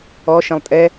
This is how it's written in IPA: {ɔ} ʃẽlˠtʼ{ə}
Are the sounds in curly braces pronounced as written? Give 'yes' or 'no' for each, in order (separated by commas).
yes, no